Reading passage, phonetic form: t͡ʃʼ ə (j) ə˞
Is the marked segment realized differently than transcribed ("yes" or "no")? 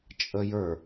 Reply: no